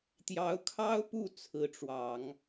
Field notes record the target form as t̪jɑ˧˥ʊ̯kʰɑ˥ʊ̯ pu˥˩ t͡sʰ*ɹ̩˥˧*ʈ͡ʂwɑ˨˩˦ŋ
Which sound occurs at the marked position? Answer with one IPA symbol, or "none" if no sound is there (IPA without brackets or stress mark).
ɹ̩˧˥